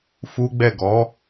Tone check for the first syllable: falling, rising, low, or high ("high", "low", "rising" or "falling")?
high